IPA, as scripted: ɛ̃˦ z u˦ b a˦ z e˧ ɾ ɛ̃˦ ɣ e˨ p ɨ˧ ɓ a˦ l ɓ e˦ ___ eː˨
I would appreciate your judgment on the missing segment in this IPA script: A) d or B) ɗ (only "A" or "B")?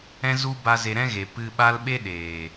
B